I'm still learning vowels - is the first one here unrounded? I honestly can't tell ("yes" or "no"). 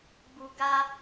no